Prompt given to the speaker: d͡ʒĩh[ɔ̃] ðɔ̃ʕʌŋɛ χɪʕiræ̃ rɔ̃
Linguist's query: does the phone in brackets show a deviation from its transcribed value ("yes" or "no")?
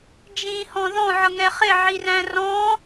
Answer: no